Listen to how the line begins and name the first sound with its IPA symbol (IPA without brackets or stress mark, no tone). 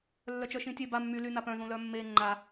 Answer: lː